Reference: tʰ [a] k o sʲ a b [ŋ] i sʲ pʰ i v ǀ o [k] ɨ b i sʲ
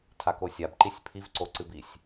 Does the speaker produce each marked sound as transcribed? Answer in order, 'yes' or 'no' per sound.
yes, no, no

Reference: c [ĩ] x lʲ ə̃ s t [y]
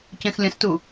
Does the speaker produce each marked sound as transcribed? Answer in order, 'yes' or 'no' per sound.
no, no

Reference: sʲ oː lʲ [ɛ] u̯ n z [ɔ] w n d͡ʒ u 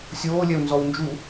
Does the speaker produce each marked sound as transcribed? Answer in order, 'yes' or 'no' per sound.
yes, yes

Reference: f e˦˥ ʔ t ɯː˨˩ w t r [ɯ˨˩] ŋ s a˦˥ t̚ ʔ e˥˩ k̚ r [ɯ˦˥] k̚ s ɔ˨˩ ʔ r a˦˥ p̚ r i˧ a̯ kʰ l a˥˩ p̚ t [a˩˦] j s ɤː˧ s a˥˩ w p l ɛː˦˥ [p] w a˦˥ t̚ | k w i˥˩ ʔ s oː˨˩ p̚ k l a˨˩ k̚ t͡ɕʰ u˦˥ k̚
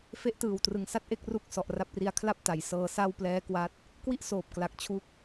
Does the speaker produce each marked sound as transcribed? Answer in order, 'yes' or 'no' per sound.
no, no, yes, no

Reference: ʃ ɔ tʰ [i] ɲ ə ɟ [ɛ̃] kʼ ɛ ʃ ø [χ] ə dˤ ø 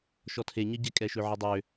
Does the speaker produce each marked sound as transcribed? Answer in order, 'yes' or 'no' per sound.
no, no, no

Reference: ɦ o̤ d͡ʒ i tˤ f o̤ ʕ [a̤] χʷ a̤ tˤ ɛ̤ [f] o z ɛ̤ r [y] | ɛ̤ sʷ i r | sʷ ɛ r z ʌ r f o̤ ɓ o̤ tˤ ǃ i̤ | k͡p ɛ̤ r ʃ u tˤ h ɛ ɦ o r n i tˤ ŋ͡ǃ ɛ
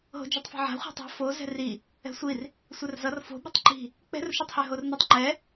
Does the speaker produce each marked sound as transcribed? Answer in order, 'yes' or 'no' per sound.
yes, yes, no

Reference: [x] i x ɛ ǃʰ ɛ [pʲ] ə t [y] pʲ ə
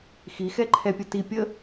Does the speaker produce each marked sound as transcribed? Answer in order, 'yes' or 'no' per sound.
yes, yes, no

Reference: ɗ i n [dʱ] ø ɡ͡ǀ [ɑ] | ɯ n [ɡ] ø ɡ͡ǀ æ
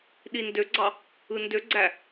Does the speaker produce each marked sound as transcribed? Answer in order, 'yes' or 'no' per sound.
no, yes, no

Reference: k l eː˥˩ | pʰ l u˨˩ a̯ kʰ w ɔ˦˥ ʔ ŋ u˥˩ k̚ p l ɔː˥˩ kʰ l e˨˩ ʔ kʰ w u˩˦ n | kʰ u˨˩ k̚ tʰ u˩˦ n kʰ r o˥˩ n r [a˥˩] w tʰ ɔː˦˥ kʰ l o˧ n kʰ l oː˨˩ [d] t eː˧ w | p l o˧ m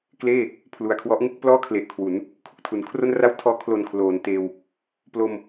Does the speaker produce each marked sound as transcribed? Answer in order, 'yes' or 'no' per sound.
yes, no

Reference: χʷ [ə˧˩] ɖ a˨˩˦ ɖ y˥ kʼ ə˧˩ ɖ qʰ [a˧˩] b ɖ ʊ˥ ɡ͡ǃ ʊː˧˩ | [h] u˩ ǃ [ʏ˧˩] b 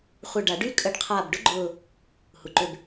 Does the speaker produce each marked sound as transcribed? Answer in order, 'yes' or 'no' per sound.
yes, no, yes, yes

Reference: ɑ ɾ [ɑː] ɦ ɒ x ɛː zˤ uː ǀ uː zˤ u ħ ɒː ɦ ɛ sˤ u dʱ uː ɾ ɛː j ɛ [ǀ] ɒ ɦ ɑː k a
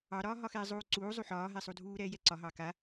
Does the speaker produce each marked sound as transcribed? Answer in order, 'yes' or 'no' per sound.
no, yes

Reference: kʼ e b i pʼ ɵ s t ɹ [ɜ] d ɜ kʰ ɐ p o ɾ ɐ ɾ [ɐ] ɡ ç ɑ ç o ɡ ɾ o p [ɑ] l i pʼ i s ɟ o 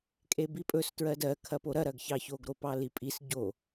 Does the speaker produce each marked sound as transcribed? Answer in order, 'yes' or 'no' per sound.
yes, yes, yes

